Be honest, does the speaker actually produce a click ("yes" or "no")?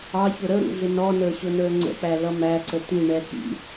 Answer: yes